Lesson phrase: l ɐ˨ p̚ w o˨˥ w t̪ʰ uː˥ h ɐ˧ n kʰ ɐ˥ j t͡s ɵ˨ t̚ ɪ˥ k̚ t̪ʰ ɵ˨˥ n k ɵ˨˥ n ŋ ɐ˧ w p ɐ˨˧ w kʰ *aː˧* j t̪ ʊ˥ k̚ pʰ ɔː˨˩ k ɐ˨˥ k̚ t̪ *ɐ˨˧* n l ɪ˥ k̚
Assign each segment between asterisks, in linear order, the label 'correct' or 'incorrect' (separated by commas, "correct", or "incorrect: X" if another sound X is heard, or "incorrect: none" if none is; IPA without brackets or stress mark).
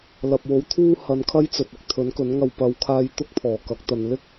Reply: correct, correct